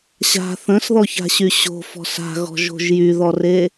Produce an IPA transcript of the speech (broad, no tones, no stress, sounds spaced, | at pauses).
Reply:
ɕ a̤ θ ə̃ s ð ɔ ç a̤ ɕ y ɕ o̤ f ɔ̤ s a̤ ɣ ɔ̤ ʒ o̤ ʒ j y ð ɔ r e